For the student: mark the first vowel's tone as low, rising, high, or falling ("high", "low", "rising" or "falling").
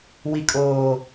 low